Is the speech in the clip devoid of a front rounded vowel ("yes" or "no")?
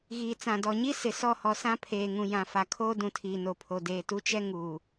yes